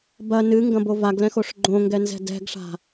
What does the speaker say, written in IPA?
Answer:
b ɐ n ɨ ŋ ɡ ɐ̃ b o v a ɡ l ɛ̃ x o ʂ ɡ͡ǃ õ ŋ ɡ ɛ n z ɛ̤ d ɛ̤ ɡ ʂ a̤

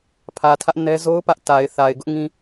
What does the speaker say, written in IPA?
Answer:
pʰ ä˨ tʰ ä˦ ʔ n ɛ˦ z o˦ ʊ̯ p ä˦ ʔ t a˨ ɪ̯ θ a˨ ɪ̯ ɡ ʊ˦ ʔ ŋ ĩ˦

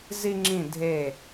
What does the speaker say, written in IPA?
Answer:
z i˥ ŋ͡ǁ ĩ˥˧ dʱ e˥˧

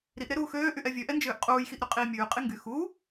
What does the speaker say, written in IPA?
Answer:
ɾ i ʔ ɾ e ɾ uː x øː ʔ y ʔ ɛ vʲ ø ʔ ɛ n d͡ʒ øː ʔ qʼ uː j x i ʔ ɾ y qʼ iː mʲ ʉː qʼ i ŋ ɡ y x uː

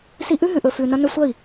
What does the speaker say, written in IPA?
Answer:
s i˧ ʔ ʉ˦ ɦ ʉ˨ ʔ ɵ˨ f ʉ˨ n ɐ˧ n ɵ˧ sʷ ɐ˦˨ i̯

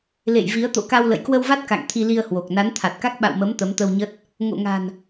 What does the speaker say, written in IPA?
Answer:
l ḛ˧˨ j v i˨˦ ə̯ t̪ o̰˧˨ k a˧ w l ə̰˧˨ j k w ə˧ w v a˦˥ t̚ k a̰˧˨ ŋ t̪ʰ i˧ l i˧ ə̯ h w o˨˩ k̚ n a˨˦ n t̪ʰ a˨˩ t̚ k a˦˥ k̚ ɓ a̰˧˨ w m ə˨˦ m t̪ ə˨˦ m t̪ ə˧ w ɲ ə˦˥ t̚ | ŋ o̰˧˨ ŋ a̤˨˩ n

